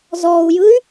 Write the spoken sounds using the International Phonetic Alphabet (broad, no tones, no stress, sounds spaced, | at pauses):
z ɔ u̯ j ɯ y̯